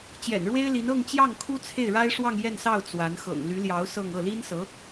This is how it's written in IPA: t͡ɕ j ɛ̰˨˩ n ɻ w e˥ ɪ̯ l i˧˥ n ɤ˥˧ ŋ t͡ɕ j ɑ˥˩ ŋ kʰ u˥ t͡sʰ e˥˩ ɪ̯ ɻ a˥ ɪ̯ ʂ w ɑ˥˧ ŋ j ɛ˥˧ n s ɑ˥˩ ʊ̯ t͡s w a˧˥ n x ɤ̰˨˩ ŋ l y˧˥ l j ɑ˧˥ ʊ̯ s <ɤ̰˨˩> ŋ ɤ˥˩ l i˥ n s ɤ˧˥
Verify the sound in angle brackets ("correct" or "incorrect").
incorrect